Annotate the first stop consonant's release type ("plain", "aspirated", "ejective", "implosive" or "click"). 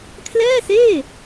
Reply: aspirated